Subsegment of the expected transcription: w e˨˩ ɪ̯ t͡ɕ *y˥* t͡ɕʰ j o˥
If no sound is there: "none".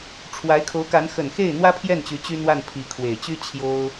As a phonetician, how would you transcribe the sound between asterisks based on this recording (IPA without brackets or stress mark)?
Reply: y˥